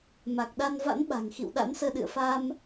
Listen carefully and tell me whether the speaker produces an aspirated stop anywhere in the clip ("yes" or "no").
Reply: no